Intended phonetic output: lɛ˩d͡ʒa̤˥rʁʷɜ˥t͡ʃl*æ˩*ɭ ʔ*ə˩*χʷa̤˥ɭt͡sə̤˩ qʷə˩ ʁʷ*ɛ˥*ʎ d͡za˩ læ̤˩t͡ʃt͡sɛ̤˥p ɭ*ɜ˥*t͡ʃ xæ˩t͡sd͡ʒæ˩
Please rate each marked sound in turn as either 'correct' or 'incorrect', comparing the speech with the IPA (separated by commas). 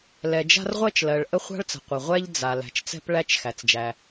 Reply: incorrect, incorrect, correct, incorrect